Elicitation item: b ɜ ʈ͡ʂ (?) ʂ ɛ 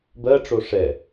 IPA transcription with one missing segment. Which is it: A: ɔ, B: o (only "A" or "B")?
B